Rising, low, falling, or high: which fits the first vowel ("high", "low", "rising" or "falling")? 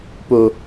high